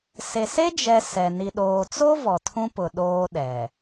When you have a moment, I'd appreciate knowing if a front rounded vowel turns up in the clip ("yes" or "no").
no